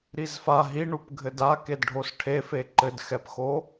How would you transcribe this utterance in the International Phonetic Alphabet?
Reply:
ɾ i z f a ɦ i ɳ u p ɡʱ ɘ d a k e d ɖʱ o s ʈʰ e f e ǃ ɘ d x ɛ p x o

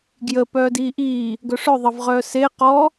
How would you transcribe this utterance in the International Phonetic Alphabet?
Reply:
ɡ j ə p œː d iː ʔ iː | ɡ œ ʂ œ ðˤ ə v ʁ œː s e q ɔ

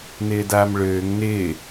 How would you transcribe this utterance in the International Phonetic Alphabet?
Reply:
n ɪː d a m ɭ øː ŋ n ɪ

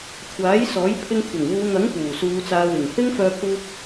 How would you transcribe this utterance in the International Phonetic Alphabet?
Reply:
kʷʰ aː˨˥ j s ɔː˨˥ j pʰ ɪ˧ ŋ kʷʰ ɐ˨˩ ŋ w uː˨˧ ŋ ɐ˨˥ ŋ p uː˨˩ s uː˨˧ t͡s aː˨˧ w ɪ˨˩ ŋ h ɪ˥ ŋ f œː˧ pʰ uː˧ k̚

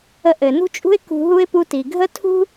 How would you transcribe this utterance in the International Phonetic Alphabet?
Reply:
ə˧ ʔ ɘ˩ n ṳ˥ t͡ʃʼ ṳ˥ ɪ̯ k ṳ˧ ɦ u˥ ɪ̯ p u˧ t i˩ ɡʱ ə˥ tʰ ṳ˥

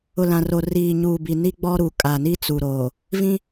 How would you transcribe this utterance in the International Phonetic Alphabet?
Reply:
ʊ˨ l ã˨ r o˨ r iː˨ ɲ uː˨ b i˨ n i˦ ɡ͡b ɔ˦ ɾ u˨ kʼ a˨ n i˦ t͡s u˨ ɾ oː˨ | v ĩ˦

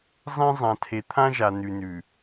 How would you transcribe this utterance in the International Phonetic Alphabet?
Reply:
zˤ ẽ˦ zˤ ã˨ tʰ e˨ t̪ʰ ã˦ ʒ a˨ n ʉ˨ n ʉ˨

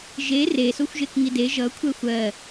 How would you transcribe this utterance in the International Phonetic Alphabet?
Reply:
ʒ e r e s o xʷ ʒ e k ŋ i d e ʒ ʌ kʷʰ ɛ xʷ ɜ

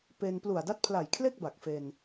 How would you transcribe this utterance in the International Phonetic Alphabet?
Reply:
p e˧ n p l u˨˩ a̯ d a˦˥ t̚ pʰ l a˨˩ j kʰ l e˥˩ k̚ b a˨˩ k̚ f e˧ n

